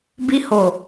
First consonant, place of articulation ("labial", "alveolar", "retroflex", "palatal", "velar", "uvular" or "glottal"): labial